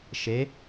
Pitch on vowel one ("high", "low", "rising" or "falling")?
rising